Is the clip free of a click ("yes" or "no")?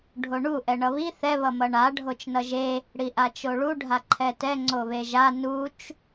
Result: no